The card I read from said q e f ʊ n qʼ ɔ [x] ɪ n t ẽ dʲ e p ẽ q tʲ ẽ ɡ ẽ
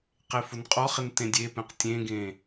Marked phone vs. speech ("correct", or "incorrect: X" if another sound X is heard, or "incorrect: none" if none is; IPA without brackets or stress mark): incorrect: χ